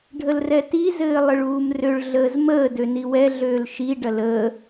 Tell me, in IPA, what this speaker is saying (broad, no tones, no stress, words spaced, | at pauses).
ɖʱəlrɛti zɘːlˠɘɭuːmrøɭ ɮəːzməː døniwɛ ɮøːlʃi ɖɐləː